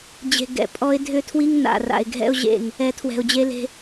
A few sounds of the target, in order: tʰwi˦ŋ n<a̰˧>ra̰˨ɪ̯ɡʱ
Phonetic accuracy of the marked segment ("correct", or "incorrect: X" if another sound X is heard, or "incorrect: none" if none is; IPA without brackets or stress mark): incorrect: a̰˨